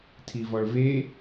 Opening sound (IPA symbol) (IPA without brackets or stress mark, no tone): tʰ